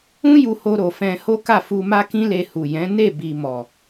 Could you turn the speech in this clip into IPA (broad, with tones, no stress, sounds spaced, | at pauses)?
ũ˦ j u˧ h o˧ ɾ o˨ f ɛ̃˧ h o˦ k a˦˨ f u˧ m a˦ k ĩ˦ l e˧ h u˨ j ɛ̃˨˦ n e˦˨ b i˨ m ɔ˨